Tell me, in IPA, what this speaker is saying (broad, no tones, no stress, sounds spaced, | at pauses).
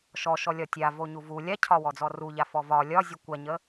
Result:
ʃ ɔ ʃ ɔ lʲ ɒ tʲ a v o ɲ u v u lʲ a cʰ ɒ w ɔ d͡z ɔ r u ʎ a f ɔ v ɒ lʲ ɒ zʲ u kʷ a ɲ ə